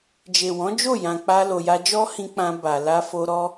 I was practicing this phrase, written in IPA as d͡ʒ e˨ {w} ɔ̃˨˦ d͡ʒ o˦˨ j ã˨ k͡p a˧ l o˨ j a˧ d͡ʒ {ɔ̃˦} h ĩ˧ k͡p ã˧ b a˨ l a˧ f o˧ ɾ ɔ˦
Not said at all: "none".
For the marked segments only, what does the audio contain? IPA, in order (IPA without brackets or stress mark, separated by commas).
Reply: w, ɔ˦